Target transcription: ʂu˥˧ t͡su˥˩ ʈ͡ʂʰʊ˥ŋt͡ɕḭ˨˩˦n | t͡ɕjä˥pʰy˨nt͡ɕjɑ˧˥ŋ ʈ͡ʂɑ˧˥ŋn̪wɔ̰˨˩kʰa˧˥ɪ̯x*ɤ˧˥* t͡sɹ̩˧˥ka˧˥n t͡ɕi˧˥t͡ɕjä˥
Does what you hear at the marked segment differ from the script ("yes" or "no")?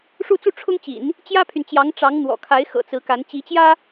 yes